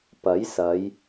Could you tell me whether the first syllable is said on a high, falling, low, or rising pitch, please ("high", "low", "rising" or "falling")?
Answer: rising